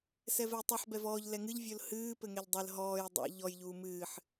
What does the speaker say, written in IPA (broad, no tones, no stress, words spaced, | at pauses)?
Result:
sɛvɛjtˤɨħ bɛvɔːʎ lɛŋɨʎ vʲolhɨː pɘŋɛʎdˤɘl ɦɔːj dˤɛ̰ ʎɔj ʎuːmɨːħ